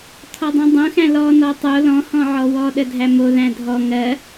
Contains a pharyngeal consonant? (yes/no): yes